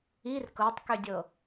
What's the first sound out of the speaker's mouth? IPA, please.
i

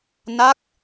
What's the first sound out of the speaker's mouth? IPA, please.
n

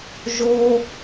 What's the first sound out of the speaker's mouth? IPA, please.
ʒ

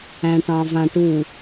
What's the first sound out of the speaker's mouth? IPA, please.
æ̃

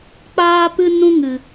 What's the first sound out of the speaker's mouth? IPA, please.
k͡p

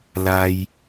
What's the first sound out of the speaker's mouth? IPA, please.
l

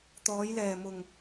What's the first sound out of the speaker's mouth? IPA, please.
t̪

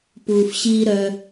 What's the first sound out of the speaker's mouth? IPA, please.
p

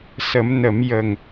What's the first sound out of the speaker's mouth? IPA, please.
s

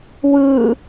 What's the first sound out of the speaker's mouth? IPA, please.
w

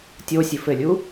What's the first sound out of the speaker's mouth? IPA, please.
tʲ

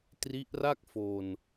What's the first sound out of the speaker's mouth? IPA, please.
t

